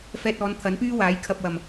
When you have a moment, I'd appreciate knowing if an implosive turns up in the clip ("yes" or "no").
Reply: no